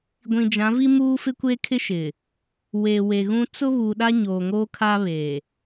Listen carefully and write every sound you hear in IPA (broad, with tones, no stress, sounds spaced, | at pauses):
ɡʷ ĩ˨ d͡ʒ ã˨˦ v i˦ m uː˦ f ɪ˦ kʷ e˦ kʰ ɪ˦ ʃ ɪ˨ | w e˨ w e˨ ɣ ũ˦ t͡s ʊ˦ β u˨ ɗ a˦ ɲ oː˨ ŋ oː˦ kʰ aː˦ β eː˨